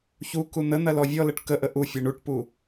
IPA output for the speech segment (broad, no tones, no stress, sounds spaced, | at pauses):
ç u k u n̪ ə n̪ ɐ l ɔ vʲ ɔ l ə ʈ k ə ʔ ə ʔ u fʲ ɐ ɳ u ʈ p u